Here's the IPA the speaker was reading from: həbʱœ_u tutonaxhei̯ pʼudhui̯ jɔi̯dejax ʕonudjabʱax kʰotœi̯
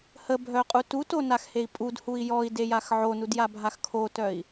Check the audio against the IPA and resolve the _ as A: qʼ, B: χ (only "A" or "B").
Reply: A